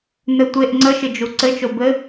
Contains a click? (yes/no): yes